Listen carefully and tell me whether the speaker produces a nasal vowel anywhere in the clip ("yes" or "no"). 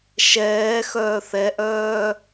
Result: no